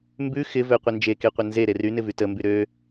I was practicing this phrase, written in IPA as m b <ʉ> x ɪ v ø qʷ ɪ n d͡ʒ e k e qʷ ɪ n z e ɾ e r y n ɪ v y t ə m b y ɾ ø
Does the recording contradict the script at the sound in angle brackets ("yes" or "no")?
no